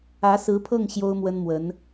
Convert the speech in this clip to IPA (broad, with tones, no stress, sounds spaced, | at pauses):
ä˧˥ s ɹ̩˧˥ pʰ ɤ˥˩ ŋ ɕ j o˥ ʊ̯ m w ə˥ n m w ə˧˥ n